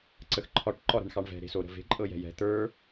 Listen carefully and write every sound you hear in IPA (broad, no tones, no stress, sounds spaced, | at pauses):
ǀ ə x ǃʰ ɒ ʈ ǃ ɒ ɾ ɛ̤ ɳ x ɑ ɳ v ɛ̤ ɾ e̤ s o ɾ ə̤ v e̤ ǃʼ ɤ j ɛ̤ j ɛ̤ t̪ ə˞